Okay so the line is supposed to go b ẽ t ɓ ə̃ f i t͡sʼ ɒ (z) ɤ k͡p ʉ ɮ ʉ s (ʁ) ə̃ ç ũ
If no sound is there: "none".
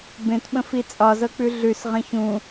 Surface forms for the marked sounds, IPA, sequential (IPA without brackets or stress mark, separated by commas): z, ʁ